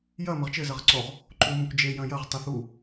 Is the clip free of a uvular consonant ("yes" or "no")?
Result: no